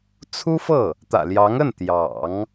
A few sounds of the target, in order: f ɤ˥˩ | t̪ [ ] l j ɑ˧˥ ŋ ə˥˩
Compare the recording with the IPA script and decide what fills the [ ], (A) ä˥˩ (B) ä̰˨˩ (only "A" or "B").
B